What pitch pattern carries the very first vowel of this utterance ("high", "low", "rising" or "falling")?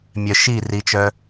low